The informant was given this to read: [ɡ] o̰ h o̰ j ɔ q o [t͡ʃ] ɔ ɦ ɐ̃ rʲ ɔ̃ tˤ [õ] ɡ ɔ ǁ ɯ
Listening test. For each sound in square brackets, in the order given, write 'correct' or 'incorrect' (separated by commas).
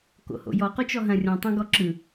incorrect, correct, correct